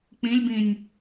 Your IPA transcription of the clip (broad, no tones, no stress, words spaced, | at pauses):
k͡pĩlʲbĩnʲ